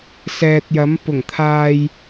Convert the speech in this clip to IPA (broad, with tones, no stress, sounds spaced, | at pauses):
s ɛː˨ t̚ j ɐ˨˥ m p ʊ˨˩ ŋ t̪ʰ aː˧ j